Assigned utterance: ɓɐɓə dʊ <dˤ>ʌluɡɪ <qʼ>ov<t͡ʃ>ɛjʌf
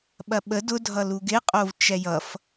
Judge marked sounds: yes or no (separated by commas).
no, yes, yes